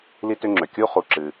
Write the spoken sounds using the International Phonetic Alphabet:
l i˦ t ʏ˦ ŋ͡ǁ ø˩ kʲ u˥ χ u˨ ǁ ɨ˨

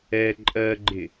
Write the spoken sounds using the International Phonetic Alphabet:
ɛ ǃʼ ɜ ɡ͡ǃ ɪ

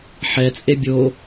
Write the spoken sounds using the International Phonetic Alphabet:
ħ ɛ t͡sʼ e bʲ o

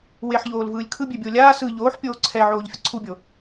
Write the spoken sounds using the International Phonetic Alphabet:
w e ħ ʎ oː l v ɯː lʲ kʰ ɯ bʲ e bʲ oː lʲ aː s ɯ ʎ oː ħ pʲ oː ǀʰ ɛ ʕ oː ʎ fʲ ʌ ǀʰ u bʲ o

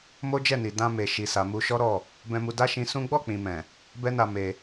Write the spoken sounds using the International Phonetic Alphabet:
m o˦ d͡ʒ ɛ˦˨ n i˨ d ã˧ m e˨ ʃ i˨ s a˨ m u˧ ʃ ɔ˦ ɾ ɔ˦˨ | b ɛ̃˧ m u˧ d a˦ ʃ ĩ˧ s ũ˦ ɡ͡b ɔ˦˨ k͡p ĩ˨ m ɛ̃˨ | b ɛ˦ n a˧ m e˧

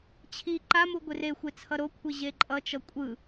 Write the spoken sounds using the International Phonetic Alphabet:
t͡ɕʰ i ǃ a m u ɡʷ e r e xʷ e t͡sʰ ʌ ɾ o kʷʰ i ʑ e ǃʼ ʌ t͡ʃ ʌ kʷʼ ɯ

